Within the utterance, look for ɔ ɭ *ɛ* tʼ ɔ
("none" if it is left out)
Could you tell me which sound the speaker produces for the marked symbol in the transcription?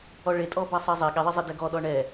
e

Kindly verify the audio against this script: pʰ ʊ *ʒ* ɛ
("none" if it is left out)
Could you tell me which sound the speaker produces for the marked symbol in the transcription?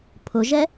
ʒ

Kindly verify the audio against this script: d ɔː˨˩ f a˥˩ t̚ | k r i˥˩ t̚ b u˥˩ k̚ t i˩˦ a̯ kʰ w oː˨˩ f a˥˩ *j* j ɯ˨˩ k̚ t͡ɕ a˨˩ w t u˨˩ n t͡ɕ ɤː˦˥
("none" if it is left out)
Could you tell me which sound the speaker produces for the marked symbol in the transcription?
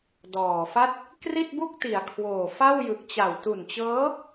w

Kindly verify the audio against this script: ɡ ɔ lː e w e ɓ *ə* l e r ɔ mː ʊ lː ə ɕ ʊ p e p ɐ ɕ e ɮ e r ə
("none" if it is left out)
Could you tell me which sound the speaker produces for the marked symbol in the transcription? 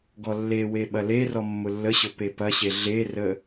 ɐ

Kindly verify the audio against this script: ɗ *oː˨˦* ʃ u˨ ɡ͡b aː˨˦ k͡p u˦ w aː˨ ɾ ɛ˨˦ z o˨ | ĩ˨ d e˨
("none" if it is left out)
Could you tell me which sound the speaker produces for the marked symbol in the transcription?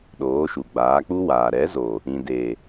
oː˨˦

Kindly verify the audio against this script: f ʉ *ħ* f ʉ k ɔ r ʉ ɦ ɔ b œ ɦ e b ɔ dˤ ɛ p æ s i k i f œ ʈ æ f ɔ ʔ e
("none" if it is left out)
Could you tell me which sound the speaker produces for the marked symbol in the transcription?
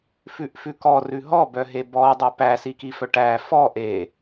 ʔ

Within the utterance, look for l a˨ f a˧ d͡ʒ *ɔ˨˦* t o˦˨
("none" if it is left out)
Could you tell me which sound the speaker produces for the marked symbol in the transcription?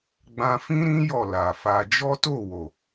ɔ˦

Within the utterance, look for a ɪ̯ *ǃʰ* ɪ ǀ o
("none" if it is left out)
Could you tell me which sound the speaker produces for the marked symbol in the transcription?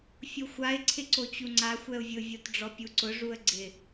ǀʰ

